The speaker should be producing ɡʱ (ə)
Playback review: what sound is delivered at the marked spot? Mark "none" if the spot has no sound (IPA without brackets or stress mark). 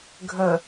ə